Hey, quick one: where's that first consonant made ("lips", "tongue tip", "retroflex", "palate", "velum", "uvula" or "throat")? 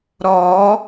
tongue tip